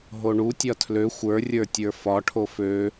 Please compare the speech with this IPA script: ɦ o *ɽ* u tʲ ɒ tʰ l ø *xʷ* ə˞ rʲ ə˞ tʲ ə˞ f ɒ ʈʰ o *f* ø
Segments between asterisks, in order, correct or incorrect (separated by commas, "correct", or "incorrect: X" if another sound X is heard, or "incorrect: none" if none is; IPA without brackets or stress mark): incorrect: ɳ, correct, correct